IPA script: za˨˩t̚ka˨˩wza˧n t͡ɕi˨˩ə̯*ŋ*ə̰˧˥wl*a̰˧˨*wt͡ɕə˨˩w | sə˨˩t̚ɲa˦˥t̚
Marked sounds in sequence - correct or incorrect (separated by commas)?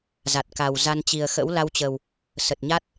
incorrect, incorrect